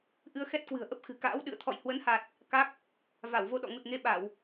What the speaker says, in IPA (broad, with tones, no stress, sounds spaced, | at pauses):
ʔ ɨ˧ ə̯ x ɛ˦˥ t̚ k w ɨ̤˨˩ ə̯ ʔ ə˦˥ p̚ x ɨ̤˨˩ k a̰ː˧˥ w ɗ ɨ̰˧˨ ə̯ t̪ʰ ɔ̰˧˨ j h w ə˨˦ n h a˨˩ t̚ | k a˦˥ k̚ | v a˧˩ w v o˧ ɗ ɔ̰˧˨ ŋ u˨˩ t̚ ŋ e˧ ɓ a˧˩˨ w